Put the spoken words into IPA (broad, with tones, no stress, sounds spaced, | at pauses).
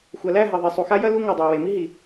xʷ ɐ˨ l æ˦˨ ɦ ɐ˨ ðˤ e˨ sˤ u˨ x a˦ j ɐ˦ l u˦ ŋ æ˨ dˤ æ˨ w e˨ m i˦ ɦ i˨